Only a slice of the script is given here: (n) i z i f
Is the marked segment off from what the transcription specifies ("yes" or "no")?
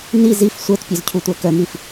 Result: no